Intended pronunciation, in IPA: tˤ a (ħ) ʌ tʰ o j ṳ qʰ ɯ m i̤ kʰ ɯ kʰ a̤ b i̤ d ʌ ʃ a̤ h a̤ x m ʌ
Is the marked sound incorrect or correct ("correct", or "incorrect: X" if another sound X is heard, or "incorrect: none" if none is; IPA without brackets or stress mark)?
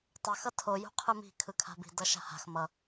incorrect: x